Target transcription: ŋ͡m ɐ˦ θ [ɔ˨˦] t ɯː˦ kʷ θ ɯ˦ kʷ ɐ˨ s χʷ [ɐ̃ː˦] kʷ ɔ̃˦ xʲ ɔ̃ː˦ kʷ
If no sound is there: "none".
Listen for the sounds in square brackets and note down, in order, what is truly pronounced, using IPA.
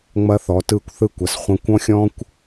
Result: ɔ˨˦, ɐ̃˦

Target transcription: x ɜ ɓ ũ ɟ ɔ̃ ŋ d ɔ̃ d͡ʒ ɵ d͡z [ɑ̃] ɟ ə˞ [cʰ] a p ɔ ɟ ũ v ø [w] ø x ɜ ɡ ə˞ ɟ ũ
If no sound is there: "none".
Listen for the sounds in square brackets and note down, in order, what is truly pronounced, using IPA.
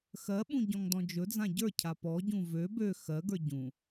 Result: ã, cʰ, b

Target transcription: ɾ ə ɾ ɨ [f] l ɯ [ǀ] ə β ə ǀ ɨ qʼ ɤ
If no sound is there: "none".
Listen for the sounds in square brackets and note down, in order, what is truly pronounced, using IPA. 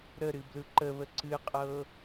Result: b, ǃ

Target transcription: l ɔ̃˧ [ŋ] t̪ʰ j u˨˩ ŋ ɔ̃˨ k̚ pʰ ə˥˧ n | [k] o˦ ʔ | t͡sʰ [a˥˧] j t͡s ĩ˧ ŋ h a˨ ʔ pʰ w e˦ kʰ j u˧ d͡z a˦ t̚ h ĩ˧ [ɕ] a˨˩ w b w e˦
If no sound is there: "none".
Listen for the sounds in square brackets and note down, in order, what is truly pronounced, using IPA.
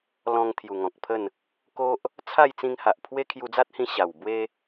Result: ŋ, k, a˥˧, ɕ

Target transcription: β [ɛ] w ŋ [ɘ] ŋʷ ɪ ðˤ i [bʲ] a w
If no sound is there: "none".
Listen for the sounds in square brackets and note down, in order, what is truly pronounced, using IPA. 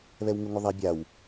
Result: ɛ, ɘ, bʲ

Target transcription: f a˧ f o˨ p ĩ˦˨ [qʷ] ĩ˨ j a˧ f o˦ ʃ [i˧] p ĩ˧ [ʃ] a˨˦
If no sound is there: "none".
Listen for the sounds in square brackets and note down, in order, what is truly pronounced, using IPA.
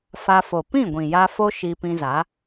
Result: ɡʷ, i˧, z

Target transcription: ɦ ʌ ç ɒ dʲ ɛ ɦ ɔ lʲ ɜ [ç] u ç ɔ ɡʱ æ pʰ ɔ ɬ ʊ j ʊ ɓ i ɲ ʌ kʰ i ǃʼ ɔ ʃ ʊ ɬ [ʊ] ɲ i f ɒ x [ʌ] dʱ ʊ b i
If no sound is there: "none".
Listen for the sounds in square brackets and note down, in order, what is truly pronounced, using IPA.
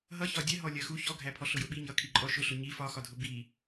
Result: x, ʊ, ɒ

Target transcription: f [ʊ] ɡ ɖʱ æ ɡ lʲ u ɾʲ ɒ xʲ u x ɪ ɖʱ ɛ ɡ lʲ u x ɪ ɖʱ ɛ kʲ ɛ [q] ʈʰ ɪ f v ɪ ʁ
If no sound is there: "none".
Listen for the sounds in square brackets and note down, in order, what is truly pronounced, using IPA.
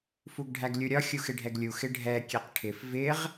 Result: u, q

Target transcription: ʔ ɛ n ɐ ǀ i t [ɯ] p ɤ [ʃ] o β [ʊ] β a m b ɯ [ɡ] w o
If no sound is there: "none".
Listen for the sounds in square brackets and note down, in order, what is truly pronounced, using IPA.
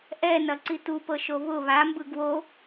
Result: u, ʃ, ʊ, ɡ

